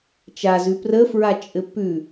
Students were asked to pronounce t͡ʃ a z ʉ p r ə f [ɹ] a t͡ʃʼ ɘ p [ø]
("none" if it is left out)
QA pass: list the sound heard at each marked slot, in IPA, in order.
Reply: ɹ, ʉ

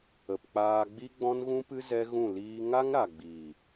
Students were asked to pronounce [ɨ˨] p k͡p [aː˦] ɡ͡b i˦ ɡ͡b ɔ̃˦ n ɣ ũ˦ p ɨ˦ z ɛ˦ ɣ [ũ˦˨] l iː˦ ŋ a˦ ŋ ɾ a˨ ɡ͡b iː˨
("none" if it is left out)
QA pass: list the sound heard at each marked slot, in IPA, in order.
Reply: ə˨, aː˧, ũ˦˨

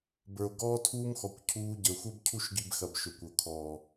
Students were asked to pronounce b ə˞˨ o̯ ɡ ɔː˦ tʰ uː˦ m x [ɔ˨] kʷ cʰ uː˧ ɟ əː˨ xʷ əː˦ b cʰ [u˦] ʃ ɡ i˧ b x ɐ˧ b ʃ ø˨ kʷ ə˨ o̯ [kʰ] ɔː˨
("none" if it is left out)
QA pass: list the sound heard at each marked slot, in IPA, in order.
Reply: ɔ˨, u˦, kʰ

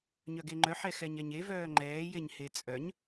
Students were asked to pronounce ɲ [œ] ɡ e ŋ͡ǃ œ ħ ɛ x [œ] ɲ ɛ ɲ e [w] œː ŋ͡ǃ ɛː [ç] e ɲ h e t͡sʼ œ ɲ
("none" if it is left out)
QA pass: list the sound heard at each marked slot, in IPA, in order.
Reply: œ, ɛ, v, j

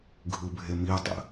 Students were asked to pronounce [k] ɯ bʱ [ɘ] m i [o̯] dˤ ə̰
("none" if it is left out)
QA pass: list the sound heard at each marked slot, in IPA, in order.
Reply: ɡʱ, e, o̯

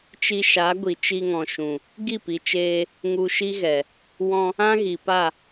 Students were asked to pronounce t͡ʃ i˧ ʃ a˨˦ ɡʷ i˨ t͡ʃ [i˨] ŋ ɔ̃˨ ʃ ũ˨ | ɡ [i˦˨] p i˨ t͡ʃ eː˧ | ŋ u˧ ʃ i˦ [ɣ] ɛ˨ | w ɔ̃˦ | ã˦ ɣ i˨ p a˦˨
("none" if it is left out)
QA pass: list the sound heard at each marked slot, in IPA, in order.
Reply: i˧, i˦˨, ɣ

